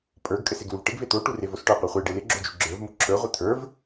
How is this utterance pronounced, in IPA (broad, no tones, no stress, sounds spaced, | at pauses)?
pʼ ə˞ ɡ kʼ ɘ s e ɡ l u v ʈ ɪ ɡ v e t̪ o ʈ u r e v o s ʈ ə˞ qʷ ə˞ χʷ e ɖ e l ɪ ɡ͡ǁ o d͡ʒ u ɡ͡ǁ ə˞ v m u ǁʰ ə˞ ʁʷ ɘ t̪ʰ ə˞ v